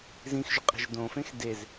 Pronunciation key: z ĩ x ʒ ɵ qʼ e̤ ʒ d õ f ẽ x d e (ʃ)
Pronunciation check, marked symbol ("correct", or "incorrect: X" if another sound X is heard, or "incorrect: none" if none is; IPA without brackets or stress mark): incorrect: z